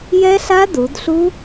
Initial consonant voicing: voiced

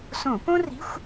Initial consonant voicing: voiceless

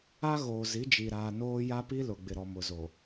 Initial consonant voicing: voiced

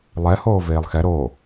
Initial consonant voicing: voiced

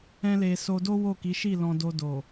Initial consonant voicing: voiced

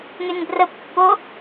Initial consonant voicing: voiced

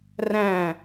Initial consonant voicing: voiced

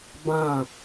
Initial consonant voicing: voiced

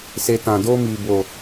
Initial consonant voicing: voiceless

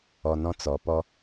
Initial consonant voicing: voiced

